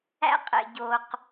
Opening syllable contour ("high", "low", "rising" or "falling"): high